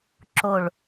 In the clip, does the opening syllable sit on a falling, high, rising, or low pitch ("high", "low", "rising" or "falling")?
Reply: low